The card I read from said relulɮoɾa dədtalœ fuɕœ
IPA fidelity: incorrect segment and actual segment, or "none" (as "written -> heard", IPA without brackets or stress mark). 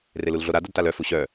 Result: none